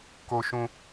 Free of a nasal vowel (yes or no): no